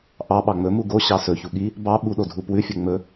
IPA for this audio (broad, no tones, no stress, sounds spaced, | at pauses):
ʔ ɑ ɓ ɑ ŋ͡m ɵ m u ɡ o ɕ ɑ s ɵ ç u ɠ i | b ɑ ɓ u ɗ o dʱ u p w ʉ fʲ ɵ ŋ͡m ɵ